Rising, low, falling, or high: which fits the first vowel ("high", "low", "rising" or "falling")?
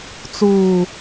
low